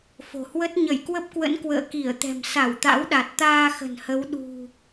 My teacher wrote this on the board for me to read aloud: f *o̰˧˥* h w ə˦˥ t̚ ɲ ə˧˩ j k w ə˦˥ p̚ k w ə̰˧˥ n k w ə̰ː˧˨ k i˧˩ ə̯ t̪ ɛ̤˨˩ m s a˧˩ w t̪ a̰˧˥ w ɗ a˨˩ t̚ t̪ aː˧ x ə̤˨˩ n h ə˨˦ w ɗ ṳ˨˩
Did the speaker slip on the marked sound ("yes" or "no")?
yes